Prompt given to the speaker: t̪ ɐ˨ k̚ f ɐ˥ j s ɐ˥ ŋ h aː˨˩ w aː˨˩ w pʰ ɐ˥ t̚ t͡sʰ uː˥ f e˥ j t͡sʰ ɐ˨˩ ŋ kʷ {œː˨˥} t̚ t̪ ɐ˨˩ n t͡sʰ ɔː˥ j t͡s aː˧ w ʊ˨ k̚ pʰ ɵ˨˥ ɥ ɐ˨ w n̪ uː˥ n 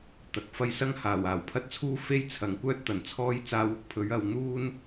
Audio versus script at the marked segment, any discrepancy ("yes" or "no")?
yes